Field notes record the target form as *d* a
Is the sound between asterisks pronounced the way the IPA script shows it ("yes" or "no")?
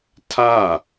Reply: no